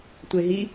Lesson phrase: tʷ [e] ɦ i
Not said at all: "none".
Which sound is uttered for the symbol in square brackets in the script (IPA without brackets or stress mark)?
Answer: e